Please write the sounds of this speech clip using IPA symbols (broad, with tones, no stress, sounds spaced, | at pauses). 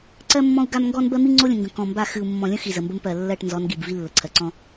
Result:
ǀ ɜ˦ mː ɔ̃˦ u̯ ɡ a˦ m ŋ ɡ ɔ˦ n b ɜ˦ m i˦ ŋ͡ǀ o˦ lʲ ə̃˨ ŋ ɡ ə̃˨ k ɔ̃˨ m b a˦˨ x ɨ˨ u̯ mː ɔ̃˨ lʲ ə̃˦ x i˨ z ə˨ m b ə˦ m p ɜ˨ lː ɜ˦˨ ʈ n z ɔ˨˦ n ɡ i˨ b v i˦ lː ə˨ ǀʰ ɜ˨ ǀ ɔ̃˦